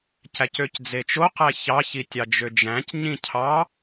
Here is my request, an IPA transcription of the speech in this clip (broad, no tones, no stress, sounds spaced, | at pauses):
c æ c ø c d͡z e t͡ʃ o q æ ç ɑ ç i tʲ ɑ d͡ʒ ø d͡ʒ æ̃ c ɲ ĩ cʰ ɑ